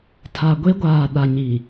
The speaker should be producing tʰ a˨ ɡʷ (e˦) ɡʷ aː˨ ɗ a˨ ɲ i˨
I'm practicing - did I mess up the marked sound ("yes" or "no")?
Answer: no